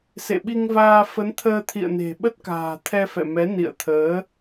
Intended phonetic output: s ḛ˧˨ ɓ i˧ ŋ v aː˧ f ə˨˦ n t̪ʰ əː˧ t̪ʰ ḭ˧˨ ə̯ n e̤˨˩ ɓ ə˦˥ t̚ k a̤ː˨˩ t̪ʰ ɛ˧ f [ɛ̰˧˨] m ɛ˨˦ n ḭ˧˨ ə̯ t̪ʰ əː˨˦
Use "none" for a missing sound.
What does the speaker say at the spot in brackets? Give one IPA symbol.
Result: ɛ̰˧˨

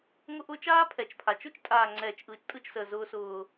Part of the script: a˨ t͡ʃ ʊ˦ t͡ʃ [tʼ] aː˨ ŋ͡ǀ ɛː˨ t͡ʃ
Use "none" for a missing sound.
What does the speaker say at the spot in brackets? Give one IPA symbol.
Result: tʼ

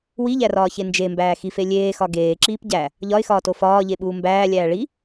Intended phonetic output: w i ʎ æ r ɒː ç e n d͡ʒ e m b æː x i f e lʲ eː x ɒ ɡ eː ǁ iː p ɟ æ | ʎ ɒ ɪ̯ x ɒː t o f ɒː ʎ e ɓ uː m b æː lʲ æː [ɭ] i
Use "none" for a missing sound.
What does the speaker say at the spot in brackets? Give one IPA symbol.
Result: ɭ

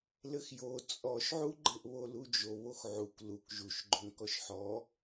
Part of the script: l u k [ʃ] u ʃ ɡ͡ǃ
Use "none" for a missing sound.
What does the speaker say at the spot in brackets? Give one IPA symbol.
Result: ʒ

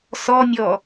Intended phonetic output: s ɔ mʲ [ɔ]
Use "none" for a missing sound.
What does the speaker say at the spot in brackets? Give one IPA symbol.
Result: ɔ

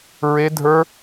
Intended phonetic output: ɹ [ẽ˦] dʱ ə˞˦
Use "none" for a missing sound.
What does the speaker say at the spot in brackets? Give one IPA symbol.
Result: e˦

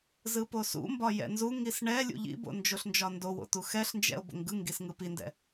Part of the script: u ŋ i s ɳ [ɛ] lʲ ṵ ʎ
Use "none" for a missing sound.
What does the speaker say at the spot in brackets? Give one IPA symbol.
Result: ɛ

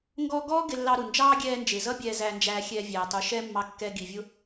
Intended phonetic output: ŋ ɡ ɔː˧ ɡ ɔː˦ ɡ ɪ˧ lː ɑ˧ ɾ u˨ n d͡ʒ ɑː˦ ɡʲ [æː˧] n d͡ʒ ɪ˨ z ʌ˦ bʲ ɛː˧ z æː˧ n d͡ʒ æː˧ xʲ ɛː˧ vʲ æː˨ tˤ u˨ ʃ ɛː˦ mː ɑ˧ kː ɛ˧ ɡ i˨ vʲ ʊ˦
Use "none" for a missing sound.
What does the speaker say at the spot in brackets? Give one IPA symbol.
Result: ɛː˧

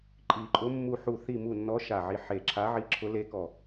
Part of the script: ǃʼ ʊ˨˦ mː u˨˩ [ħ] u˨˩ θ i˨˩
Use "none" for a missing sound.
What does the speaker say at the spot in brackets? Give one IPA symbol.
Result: ħ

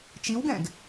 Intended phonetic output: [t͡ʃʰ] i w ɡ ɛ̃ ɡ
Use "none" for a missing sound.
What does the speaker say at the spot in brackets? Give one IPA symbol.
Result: t͡ʃ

